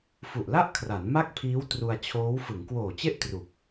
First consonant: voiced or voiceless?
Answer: voiceless